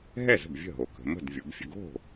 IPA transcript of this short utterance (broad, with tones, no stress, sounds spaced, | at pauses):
ɦ ɛ˥˩ z ə̤˥˩ b vʲ ə̤˥˩ ɦ o˩˧ k ə̤˩˧ m ə̤˥˩ d vʲ o˩˧ b fʲ ə̤˧ ɡ o̤˥˩